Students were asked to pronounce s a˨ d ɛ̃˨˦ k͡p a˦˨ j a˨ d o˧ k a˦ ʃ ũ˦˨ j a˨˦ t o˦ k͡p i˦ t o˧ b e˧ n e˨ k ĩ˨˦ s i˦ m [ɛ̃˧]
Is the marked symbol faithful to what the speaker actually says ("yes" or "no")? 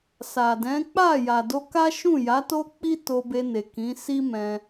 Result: yes